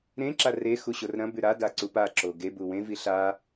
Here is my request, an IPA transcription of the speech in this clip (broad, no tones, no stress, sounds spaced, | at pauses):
ɾ ẽ ǁ a r e x u ɕ o r ɾ ɐ̃ b ʉ ɾ a d a ǀ u p a ǁ o ɡ e b u w ẽ v i ɬ a